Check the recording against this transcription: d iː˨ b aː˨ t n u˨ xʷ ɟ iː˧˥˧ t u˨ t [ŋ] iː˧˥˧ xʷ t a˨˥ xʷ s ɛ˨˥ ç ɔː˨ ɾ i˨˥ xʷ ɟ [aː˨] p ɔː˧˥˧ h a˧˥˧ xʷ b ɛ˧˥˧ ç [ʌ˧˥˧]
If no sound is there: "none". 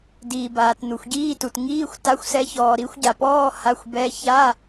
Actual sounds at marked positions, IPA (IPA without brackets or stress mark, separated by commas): ŋ, a˨, a˧˥˧